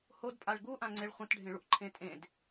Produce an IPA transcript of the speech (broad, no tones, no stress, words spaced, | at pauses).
hodpʼaɭ ɡuʔãŋ͡ǀeɭ χʷɐ̃tɖʱẽɭuʔǃʰẽ tʼẽd